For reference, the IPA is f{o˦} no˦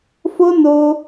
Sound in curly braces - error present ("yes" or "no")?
no